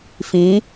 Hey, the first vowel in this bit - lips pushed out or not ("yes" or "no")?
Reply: no